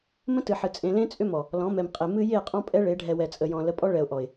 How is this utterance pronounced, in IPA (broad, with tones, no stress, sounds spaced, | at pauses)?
m ə̃˦ t ɨ˨ ħ ɨ˨ t͡sʼ ẽ˨ l ẽ˦ t͡sʼ ʏ˦ m ɔ˨ | l ɔ̃˨˦ m ɛ˨ m qʼ e˨ m ɨ˦ j e˦˨ qʼ ɔ̃˦ pʼ ɛ˦ ɭ e˨˦ ɖʱ ɛ˨ w ɛ˨ t͡sʼ ə˨ j ɔ̃˨ l ə˨˦ pʼ ɔ˦ ɭ ɛ˨ ʊ̯ ʔ ɔ˨ ɪ̯